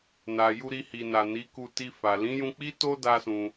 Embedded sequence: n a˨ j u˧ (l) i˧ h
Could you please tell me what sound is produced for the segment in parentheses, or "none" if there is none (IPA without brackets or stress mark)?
ɾ